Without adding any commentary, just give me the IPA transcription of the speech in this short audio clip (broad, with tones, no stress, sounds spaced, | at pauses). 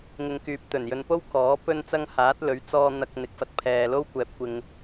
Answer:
ŋ ɪ˨ ŋ k yː˨ p̚ t̪ ɵ˨˩ n j ɵ˨ n p o˥ w k ɔː˨˥ p ɵ˥ n t͡s ɐ˥ ŋ h aː˨˥ t̚ l ɵ˨˥ ɥ t͡s ɔː˧ n̪ ɐ˨ k̚ n̪ ɪ˨ k̚ f ɐ˥ t̚ pʰ ɛː˧ l o˥ w kʷ ɛː˨ p̚ kʷ ɪ˧ ŋ